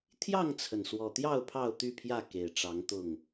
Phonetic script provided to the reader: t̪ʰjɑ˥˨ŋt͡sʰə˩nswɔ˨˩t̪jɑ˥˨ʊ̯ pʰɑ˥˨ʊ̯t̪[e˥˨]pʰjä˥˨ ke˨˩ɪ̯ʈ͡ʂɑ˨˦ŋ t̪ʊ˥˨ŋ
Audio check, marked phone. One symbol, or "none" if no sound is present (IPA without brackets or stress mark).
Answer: y˥˨